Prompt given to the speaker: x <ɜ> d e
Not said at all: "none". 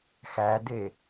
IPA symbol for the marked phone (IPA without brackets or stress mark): æ